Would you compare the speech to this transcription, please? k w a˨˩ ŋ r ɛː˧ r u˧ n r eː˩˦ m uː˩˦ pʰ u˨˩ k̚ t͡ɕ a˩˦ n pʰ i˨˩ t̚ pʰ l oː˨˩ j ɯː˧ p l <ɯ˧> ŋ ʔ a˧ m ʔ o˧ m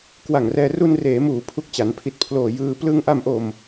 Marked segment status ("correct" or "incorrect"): correct